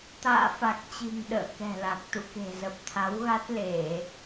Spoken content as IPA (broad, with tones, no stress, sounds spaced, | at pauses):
t̪ a̰ː˧˨ f a˨˩ k̚ t͡ɕ i̤˨˩ ŋ ɗ ə̰ː˧˨ k ɛ̤˨˩ l a˨˩ k̚ t̪ ṵ˧˨ k e̤˨˩ z ə˨˩ p̚ t̪ʰ a˨˦ w ɣ a˦˥ t̚ l e˧˩˨